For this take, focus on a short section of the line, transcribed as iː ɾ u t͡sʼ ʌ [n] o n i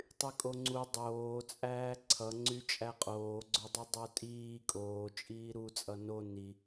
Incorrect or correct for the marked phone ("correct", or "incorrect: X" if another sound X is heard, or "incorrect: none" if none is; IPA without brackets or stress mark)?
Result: correct